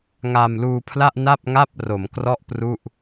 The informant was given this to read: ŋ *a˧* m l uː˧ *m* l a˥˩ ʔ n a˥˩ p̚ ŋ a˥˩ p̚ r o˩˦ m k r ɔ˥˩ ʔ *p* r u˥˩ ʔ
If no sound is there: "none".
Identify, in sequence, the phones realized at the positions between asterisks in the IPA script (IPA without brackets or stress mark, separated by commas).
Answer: a˧, pʰ, p